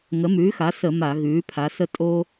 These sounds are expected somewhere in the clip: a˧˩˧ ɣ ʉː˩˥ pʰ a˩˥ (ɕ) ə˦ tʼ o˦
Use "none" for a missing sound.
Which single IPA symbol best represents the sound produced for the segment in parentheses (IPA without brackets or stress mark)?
s